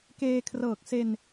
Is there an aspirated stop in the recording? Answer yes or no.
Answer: yes